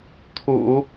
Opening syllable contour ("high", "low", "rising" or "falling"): low